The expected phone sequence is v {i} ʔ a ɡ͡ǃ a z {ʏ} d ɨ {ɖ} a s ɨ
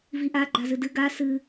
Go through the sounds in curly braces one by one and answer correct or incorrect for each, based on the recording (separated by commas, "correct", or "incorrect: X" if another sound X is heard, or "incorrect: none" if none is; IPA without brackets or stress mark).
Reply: correct, incorrect: ɨ, incorrect: ɡ